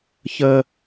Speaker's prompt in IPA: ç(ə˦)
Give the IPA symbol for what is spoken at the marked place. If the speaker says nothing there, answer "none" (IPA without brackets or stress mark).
ə˦